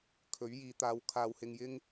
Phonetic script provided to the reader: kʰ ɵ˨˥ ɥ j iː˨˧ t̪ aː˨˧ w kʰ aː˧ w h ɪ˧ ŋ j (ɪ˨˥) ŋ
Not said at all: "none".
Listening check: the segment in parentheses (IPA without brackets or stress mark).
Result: ɪ˥